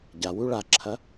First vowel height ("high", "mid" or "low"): low